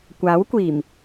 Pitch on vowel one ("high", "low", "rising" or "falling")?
rising